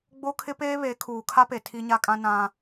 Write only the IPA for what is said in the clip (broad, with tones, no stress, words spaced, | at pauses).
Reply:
ɡ͡bo˦kʰɪ˦peː˦βe˨˦ kʰuː˨kʰa˦pe˨ tʰi˦ɲa˦kʼã˦ nã˦